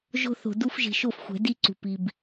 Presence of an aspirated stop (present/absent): absent